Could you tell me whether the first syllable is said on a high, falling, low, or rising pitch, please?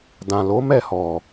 low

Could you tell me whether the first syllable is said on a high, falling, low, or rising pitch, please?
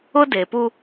high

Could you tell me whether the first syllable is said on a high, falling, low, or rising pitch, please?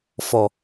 low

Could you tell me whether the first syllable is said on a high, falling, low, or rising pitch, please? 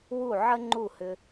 falling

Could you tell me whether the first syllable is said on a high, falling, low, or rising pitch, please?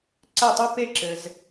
falling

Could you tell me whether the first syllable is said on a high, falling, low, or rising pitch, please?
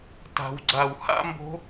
low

